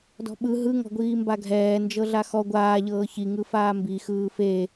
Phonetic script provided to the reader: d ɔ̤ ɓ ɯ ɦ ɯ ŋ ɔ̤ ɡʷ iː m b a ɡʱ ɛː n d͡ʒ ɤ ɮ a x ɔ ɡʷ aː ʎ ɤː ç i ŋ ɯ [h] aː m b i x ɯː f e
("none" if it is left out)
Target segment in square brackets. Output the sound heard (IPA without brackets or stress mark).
f